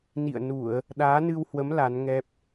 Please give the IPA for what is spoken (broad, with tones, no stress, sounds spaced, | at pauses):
n ḭ˧˨ ə̯ n u˧˩˨ ə̯ | ɗ aː˨˦ n ɨ˧ w h w ə˨˦ m l a˨˦ n ŋ ɛ˦˥ p̚